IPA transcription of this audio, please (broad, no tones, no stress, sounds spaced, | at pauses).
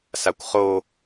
s a kʷ χ o